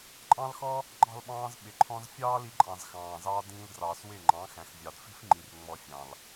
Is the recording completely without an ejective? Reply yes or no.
no